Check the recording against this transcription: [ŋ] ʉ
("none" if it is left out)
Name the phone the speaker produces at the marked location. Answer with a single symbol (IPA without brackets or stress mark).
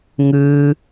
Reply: ŋ